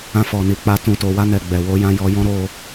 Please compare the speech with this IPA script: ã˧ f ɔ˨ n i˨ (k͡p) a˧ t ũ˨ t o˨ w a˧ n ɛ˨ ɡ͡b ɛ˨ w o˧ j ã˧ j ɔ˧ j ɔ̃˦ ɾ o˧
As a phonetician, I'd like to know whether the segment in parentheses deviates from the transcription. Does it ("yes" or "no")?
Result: no